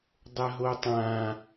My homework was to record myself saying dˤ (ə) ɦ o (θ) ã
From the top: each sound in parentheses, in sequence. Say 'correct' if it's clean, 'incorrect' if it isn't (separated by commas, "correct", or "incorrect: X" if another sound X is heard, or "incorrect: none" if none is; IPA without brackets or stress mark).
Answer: correct, incorrect: tˤ